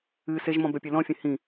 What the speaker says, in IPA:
ɨ seʒmɔ̃ bœpʲelɔ̃fʲɛ̃ hĩ

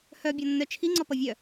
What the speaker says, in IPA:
hœ bʲɔnːœt͡ʃʰi ŋ͡ǀɔpʌvʲœ

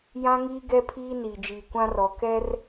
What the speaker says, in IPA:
jã˦ŋiː˦ ɡɛ˦pʰiː˦ niː˨d͡ʒiː˨kʷã˦rɔ˨ kɛ˦r

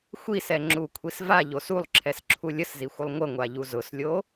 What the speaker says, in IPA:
xʷisɛŋ͡ǁukʷʰis vaʎos ulˠǁʰɛsǁʰu lʲəszixʷəlˠ ŋʷəŋʷaʎu zʊslʲo

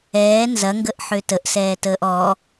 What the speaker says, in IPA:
ɛː nzɐŋɡəʔħø təʔsɛːtəːʔ ɔ

